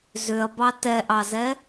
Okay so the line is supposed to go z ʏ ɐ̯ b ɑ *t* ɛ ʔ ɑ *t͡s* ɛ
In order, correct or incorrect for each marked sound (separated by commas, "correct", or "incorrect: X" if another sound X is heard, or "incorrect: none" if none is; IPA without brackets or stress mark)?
correct, incorrect: z